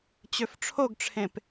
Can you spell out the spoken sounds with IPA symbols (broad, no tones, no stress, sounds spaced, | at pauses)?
t͡ɕ ø f ʈ͡ʂʰ o ɡ ʈ͡ʂʰ ẽ p